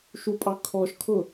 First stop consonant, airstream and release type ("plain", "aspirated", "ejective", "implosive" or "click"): ejective